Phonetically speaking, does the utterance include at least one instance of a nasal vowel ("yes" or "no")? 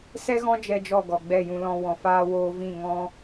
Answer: yes